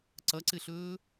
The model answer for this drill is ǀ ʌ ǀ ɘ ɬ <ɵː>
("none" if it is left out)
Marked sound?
ɵː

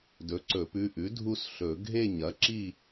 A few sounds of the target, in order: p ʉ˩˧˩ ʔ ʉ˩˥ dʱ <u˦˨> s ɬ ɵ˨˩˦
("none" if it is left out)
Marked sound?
u˦˨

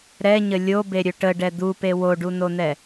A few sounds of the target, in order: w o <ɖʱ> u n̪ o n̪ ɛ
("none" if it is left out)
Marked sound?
ɖ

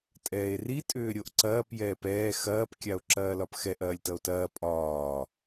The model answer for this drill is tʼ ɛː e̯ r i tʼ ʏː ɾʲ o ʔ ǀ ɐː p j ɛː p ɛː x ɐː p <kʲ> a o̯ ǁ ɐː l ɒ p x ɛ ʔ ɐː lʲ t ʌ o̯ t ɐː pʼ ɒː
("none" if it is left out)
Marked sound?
kʲ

